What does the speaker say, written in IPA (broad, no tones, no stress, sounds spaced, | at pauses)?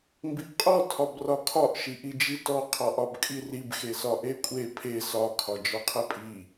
m b i ʔ qʼ ɔ tʰ ɒ b r ɒ kʰ ɒ ʔ ʃ i ʔ i d͡ʒ i t ɔ qʰ ɒ ʔ ɒ b kʼ i r i b x e s ɒ ʔ e kʷʼ e pʰ e s ɒ kʰ ɒ d͡ʒ ɒ qʰ e pʼ i